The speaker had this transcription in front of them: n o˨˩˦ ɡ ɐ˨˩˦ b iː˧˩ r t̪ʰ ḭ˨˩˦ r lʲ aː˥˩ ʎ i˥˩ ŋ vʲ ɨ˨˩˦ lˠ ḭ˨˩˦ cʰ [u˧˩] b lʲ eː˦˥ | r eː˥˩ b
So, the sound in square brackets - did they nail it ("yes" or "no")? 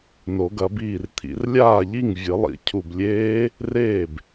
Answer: yes